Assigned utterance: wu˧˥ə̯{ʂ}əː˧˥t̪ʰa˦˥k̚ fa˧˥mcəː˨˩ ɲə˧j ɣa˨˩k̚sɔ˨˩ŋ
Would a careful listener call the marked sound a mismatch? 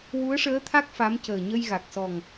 no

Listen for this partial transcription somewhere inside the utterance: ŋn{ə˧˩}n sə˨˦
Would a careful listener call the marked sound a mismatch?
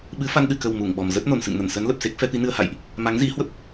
no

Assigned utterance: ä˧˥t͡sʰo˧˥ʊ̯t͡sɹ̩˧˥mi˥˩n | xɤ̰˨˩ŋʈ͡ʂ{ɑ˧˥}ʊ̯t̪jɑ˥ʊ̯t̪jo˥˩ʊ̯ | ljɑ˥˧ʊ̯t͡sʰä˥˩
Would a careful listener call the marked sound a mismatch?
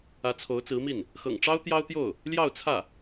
yes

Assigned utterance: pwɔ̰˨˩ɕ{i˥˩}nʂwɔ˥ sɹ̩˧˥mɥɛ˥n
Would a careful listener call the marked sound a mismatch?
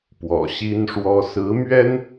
yes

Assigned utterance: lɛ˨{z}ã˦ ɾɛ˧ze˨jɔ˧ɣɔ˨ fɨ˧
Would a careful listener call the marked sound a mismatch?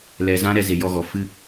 no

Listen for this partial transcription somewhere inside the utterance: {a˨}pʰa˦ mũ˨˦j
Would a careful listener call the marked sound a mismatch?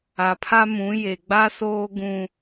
no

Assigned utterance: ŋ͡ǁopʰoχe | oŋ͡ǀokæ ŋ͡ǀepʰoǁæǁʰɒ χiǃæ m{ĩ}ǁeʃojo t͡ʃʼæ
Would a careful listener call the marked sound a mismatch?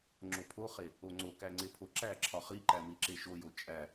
yes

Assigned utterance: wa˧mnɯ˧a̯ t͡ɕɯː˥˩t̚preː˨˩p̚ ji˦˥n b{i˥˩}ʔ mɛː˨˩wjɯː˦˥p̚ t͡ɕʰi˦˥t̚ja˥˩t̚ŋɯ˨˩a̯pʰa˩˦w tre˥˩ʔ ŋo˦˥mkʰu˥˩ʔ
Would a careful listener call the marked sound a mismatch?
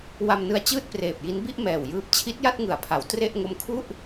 no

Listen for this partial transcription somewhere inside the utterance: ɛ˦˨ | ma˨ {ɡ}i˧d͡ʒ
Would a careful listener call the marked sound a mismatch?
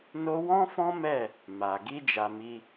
no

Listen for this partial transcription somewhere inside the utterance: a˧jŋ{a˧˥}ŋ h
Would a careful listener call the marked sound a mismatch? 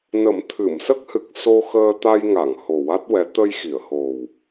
yes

